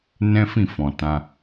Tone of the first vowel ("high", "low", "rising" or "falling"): high